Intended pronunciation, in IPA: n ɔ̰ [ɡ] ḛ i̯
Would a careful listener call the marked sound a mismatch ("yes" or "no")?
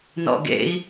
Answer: no